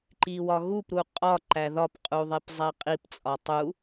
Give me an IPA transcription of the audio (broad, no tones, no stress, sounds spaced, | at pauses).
ǃ i w ɒ ɣ u p ɾ u qʼ ɒ ǃ æ ð ɒ p qʼ u ðˤ e p zˤ æ qʼ i p t͡sʼ ɒ tˤ u